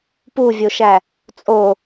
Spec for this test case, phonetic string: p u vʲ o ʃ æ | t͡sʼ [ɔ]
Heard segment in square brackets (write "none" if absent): o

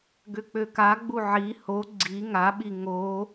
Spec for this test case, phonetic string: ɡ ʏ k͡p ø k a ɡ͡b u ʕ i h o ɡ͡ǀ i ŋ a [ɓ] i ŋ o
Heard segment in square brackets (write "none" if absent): ɓ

